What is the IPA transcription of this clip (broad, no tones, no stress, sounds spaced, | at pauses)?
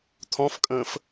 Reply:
tʰ ɔ̃ f kʼ ə̃ː f